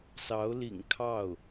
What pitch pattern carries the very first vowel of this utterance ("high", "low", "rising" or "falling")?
rising